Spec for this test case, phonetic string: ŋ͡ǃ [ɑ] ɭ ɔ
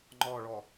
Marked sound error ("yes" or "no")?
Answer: yes